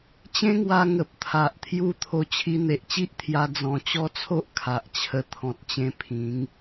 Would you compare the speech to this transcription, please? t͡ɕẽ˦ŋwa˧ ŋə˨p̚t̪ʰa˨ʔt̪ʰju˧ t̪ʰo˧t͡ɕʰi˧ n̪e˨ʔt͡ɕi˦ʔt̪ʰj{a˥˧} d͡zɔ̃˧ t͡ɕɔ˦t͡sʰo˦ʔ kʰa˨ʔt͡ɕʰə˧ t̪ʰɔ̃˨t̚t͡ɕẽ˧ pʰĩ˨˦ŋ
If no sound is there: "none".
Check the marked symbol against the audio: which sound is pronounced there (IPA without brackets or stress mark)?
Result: a˧